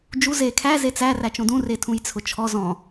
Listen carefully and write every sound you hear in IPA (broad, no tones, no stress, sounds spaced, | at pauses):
d͡ʒ u z e kʰ æ z e t͡s æ r æ t͡ʃ õ d ũ r e tʰ ũ j t͡sʰ ʊ t͡ʃʰ ɔ z ɔ̃